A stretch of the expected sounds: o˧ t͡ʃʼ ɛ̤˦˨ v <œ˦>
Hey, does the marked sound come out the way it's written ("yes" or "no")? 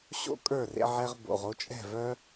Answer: yes